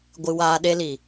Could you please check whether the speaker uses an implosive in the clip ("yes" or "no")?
yes